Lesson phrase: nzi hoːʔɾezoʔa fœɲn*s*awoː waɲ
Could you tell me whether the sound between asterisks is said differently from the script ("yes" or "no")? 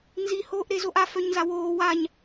yes